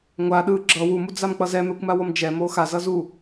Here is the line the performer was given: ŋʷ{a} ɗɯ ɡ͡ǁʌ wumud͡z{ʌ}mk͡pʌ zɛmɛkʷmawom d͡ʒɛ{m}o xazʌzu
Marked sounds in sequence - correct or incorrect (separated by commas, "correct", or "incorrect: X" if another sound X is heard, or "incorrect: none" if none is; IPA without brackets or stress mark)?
correct, incorrect: a, correct